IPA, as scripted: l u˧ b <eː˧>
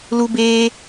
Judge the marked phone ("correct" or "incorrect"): correct